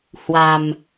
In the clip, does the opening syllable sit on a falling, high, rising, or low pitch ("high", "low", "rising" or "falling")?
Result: low